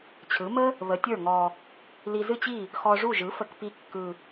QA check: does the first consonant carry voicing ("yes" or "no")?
no